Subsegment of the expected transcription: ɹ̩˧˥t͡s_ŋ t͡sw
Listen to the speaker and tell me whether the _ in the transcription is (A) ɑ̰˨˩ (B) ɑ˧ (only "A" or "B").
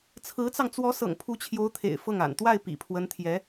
B